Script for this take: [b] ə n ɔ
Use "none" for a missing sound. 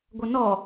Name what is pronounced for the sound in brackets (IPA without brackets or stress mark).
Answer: ɡʷ